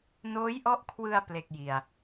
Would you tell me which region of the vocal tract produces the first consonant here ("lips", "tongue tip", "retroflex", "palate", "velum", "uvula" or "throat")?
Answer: tongue tip